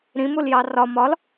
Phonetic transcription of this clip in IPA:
ɾ ĩ m u l j ɑ r ɒ m ɒ l

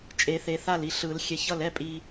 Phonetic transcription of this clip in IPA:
t͡ʃʼ e˨˩˦ θ e˨˩˦ θ a˥˩ l i˨˩˦ ɬ ɯ˨˩˦ l xʲ ɛ˨˩˦ ç ʌ˥˩ l ɛ˦ pʼ i˨

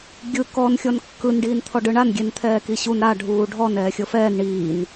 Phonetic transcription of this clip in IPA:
ɡʲ ɯ k ɔ n xʲ ɔ n kː ɯ n ɖ iː n t̪ʰ ɔ ɖ ɯ ɳ a n ɡʲ e n t̪ʰ ɛː k i ɕ u n ɾ a ɖʱ uː ɖʱ ɔ n ɛː xʲ ɤ f ɛː n ɳ iː n

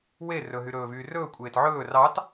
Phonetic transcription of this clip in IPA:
w e r ɵ ɦ y ɾ ɵː v yː r ɵː kʷʼ eː t ʕ ɵː r ɑ t

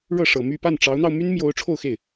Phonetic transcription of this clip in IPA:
ɻ ɤ˥˩ ʂ ɤ˨˩ m y˥˧ p a˥˩ n ʈ͡ʂ ɑ˧˥ ʊ̯ n̪ ɑ˧ ʊ̯ m y˥ n m j o˧˥ ʊ̯ ʈ͡ʂʰ o˥˧ ʊ̯ x e˥˩ ɪ̯

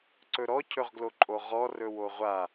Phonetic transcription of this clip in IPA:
ǀ ɵ ɾ ɔ cʰ ɵ ʁ ɡ l o ǃʼ o ʁ ɔ r ɵ w o ʁʷ a

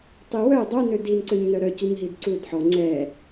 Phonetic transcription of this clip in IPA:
tˤ i w œ dˤ œ n ø d i n ǀ ø ɲ n œ ɾ œ c u ɲ ɦ i d ǀ u d ħ ɔ ŋ͡ǀ ɛ

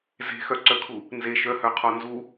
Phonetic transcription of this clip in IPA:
z e̤ x œ ǀ œ kʰ u | n z e ʃ œ h œ qʰ ɔ n z u

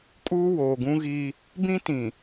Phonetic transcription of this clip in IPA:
kʼ uː˦ w oː˨ ɡ ũ˦ ɣ i˦ | b ĩ˦ t ĩ˨

